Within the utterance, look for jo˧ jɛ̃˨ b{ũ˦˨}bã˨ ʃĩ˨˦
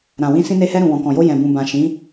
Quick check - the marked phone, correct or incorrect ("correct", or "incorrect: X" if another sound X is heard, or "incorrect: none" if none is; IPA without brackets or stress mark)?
incorrect: ũ˨